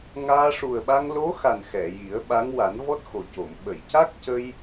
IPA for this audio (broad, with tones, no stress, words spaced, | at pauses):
ŋaː˧ ʂu˨˩ə̯ɓa˧ŋlo˧˥xa˨˩n xɛ˨˩˨ji˨˩˦ə̯ɓa˧˥ŋ wa˨˩˦nvɔ˦˥t̚xo˨˩co˨˩˨m ɓə˨˩˨jca˦˥k̚ cə˧j